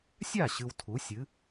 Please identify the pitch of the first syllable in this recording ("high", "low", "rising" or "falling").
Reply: falling